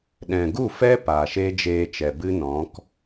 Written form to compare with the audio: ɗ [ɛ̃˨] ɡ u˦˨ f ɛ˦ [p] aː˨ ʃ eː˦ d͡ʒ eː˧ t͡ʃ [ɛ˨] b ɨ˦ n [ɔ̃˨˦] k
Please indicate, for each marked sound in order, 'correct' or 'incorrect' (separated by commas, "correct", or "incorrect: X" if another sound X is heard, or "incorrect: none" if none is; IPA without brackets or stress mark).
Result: correct, correct, correct, correct